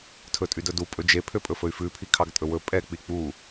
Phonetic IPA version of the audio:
tʰɵtʼydɵdu pʼɵd͡ʒe pʰøpʼɵfɵy̯fʉ pʰikʰɑɡtʼɵwɵ pʼɛ k͡pik͡pu

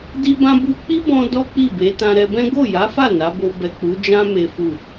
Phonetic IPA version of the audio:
di˦bã˦ bu˧k͡pi˦bɔ̃˧ dɔ˦k͡pi˦˨be˨˦ tã˧ɾɛ˧bɛ̃˦ ɡo˦˨ja˨˦fa˦˨ na˨˦bo˧ bɛ˨ k͡pu˨˦d͡ʒã˦ me˦fu˦˨

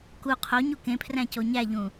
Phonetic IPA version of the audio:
ku qʰoɲu kẽpʰræ̃co ɲæʎũ

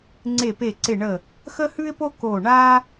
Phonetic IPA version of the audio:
ŋ͡ǀe˧˩pe˧˩ǀɪ˧˩ɳə˧˩ | xə˥hʉ˥ɪ̯po˥ ko˧˩ɳa˥

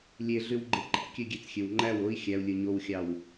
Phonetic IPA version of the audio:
lʲeɮywɡ͡ǃe ǃæ̰kʲøɡʲet͡sxʲøw ŋ͡ǃæw oi̯ xʲæu̯lʲɯ ɲowxʲɑw

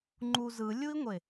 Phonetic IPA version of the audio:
ŋ͡ǃu zɯlʲui̯ŋʷe

